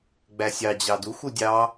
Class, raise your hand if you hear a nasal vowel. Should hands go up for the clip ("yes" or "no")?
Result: no